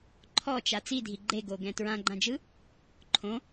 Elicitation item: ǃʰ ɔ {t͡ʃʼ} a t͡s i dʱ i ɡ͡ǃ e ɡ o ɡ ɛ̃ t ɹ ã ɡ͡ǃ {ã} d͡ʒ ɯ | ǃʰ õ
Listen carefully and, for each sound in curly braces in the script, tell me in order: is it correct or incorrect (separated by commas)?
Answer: incorrect, correct